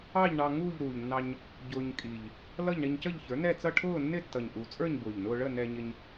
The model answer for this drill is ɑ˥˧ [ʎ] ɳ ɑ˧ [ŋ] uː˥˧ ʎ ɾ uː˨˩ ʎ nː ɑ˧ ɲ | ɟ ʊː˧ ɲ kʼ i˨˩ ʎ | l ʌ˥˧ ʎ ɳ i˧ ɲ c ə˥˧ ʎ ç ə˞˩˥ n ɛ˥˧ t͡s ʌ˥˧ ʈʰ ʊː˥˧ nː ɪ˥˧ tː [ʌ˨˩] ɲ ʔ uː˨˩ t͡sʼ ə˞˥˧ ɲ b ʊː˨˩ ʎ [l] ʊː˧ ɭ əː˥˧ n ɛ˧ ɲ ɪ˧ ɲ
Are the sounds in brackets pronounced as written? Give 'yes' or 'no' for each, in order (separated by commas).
yes, yes, yes, no